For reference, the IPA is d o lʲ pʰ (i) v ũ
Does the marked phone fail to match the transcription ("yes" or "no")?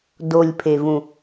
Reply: yes